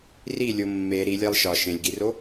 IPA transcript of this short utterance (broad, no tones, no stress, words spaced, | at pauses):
rilʲo mːe ɾilʲælˠ ʃɒ ʃẽlʲɡiro